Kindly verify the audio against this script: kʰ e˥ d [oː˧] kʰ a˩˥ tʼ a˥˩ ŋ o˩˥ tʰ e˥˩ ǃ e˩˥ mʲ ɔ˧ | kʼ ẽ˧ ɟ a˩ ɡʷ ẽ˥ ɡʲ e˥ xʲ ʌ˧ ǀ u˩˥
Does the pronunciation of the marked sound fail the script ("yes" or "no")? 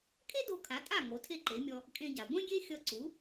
yes